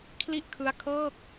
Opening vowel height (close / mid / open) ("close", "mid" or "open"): close